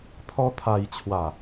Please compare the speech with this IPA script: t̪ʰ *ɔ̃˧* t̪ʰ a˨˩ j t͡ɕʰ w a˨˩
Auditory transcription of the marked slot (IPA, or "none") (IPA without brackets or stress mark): ɔ˧